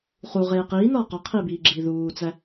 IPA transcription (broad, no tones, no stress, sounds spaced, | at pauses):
χ u ʁ eː q iː n ɒː q ɒ qʰ iː b iː ɡ͡ǁ iː ð uː t͡s æ